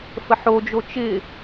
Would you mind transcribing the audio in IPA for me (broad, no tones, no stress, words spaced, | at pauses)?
fəħod͡ʒo t͡ʃɪ